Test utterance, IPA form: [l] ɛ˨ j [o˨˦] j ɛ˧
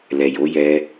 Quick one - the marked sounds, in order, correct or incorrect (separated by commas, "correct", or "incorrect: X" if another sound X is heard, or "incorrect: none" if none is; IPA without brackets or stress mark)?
correct, correct